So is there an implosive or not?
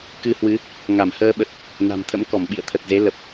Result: yes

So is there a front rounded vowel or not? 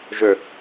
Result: yes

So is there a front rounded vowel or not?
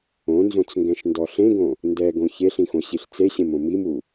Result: no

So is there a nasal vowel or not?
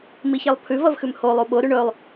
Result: no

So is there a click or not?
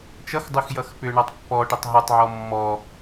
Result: no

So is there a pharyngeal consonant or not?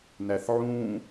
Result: yes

